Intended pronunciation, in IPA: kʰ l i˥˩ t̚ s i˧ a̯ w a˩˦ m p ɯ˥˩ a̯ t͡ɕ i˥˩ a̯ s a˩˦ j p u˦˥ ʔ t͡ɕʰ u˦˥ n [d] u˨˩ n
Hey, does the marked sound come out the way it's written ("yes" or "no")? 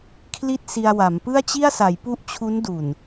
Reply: yes